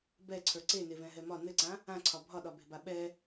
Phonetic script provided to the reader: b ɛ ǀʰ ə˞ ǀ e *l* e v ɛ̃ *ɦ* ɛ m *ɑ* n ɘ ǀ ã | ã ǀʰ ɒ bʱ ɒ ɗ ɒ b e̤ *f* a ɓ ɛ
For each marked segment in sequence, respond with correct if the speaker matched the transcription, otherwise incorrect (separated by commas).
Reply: incorrect, correct, incorrect, incorrect